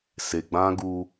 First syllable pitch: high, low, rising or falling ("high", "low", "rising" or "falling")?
low